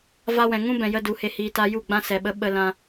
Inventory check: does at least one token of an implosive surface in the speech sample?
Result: yes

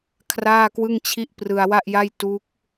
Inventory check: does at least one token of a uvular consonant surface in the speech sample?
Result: no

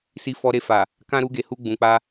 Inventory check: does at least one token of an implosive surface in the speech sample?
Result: no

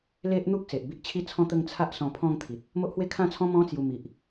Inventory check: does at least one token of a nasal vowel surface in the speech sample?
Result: yes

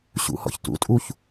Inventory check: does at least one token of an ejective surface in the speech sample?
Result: yes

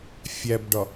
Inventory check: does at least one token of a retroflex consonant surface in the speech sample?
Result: yes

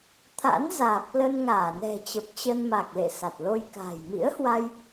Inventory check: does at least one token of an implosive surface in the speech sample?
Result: no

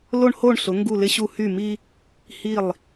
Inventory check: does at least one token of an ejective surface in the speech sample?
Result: no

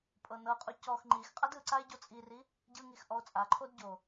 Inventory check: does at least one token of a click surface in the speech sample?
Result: yes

